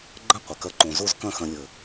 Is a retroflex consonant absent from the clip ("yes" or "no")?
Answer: yes